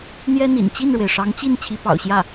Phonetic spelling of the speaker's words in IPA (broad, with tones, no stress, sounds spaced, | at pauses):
n̪ j ɛ˥ n̪ ḭ˨˩ n t͡ɕ i˥˩ n ɻ w e˩ ɪ̯ ʂ ɑ˧˥ ŋ t͡ɕ i˥˩ n t͡ɕʰ i˧˥ p ɑ̰˨˩ ʊ̯ ɕ j ä˥˩